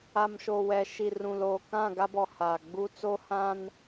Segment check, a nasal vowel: present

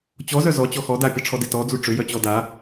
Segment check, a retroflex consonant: present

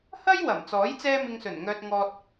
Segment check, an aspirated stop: absent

